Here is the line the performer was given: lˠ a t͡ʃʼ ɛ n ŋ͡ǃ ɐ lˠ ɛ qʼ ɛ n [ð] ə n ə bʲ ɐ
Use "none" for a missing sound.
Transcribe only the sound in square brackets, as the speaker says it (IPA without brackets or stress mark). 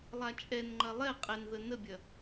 ð